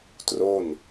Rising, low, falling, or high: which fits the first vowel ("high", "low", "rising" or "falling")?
falling